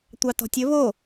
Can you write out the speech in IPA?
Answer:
tʷ ɑ t ɔ̤ tʲ ɵ β o

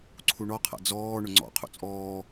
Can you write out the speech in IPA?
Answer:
ǀʰ u ɳ ɔ qʰ a̰ d͡z ɔː ɳ ʊ ŋ͡ǀ ɔ̰ qʰ ṵ t͡sʼ ɔː

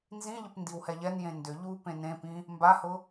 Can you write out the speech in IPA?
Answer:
n z ĩ ʎ ə p n d i w h ɛ ʎ ɛ n j ẽ n d ʏ ʎ u p ẽ n ẽ p ĩ | m b a h ʊ

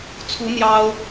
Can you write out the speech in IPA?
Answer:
t͡sʰ u˧˥ n̪ j ɑ˥ ʊ̯

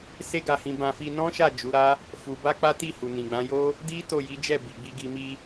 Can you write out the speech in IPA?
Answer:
s e˦ ɡ a˧ h ĩ˧ b ã˧ f i˧ n ɔ̃˦ ʃ a˦˨ d͡ʒ u˨˦ ɾ a˦ | f u˧ b a˦ k͡p a˦ t i˦˨ h u˨ n ĩ˨ ɡ͡b ã˨˦ j o˦ | d i˦ t o˦˨ j i˨˦ d͡ʒ ɛ˦˨ b i˨ ɡ͡b i˧ ɡ i˧ m i˧

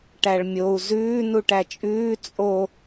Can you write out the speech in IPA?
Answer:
ʈ æ ɭ mʲ o u̯ z ʉː n u ʈ æ t͡ʃʼ ʉː t͡sʼ o

